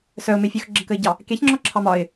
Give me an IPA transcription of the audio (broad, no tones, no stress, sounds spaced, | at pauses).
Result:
s œ ʊ̯ m e fʲ œ x ɡ͡ǁ ə k ə ɪ̯ ɟ ɑ | k e ç ŋ͡ǁ ɔ ǁʰ ɑ m ɒ ɪ̯